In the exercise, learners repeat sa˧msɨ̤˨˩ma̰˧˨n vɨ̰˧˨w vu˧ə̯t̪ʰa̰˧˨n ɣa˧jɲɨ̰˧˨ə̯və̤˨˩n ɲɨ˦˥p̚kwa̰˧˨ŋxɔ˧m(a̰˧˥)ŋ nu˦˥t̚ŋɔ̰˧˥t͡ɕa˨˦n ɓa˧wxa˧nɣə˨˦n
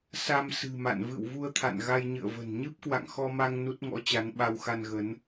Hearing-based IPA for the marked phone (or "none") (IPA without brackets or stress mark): a˧